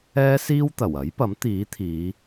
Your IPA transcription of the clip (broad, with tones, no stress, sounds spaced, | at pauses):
ɛː˥ s iː˥ w t̪ ɐ˨˩ w ɐ˨˥ j p ɐ˨˥ m t̪ iː˨˥ t̪ʰ iː˨˧